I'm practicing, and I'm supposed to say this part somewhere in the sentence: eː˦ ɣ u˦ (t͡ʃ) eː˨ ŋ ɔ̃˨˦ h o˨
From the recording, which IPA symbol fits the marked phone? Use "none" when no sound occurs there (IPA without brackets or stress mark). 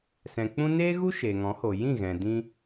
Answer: ʃ